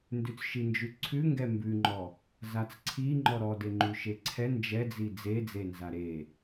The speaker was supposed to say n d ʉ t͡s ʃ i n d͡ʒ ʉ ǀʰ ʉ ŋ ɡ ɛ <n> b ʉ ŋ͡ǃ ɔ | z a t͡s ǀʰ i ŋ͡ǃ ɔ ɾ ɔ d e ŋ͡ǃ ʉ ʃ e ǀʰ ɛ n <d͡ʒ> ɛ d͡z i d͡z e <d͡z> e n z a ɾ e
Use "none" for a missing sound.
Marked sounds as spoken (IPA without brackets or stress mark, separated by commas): m, d͡ʒ, d͡z